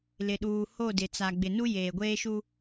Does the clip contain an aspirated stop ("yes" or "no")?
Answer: no